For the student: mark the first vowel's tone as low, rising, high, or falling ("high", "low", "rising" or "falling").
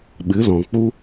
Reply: rising